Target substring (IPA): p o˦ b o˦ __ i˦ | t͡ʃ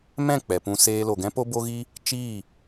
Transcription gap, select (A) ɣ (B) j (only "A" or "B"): A